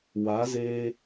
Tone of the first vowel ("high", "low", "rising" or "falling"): rising